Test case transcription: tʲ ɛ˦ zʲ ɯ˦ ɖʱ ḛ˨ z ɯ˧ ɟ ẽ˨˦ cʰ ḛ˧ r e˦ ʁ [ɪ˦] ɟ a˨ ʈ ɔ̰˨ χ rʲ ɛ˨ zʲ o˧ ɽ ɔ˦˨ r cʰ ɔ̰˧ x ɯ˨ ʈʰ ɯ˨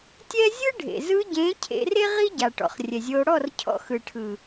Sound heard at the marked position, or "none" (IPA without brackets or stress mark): i˦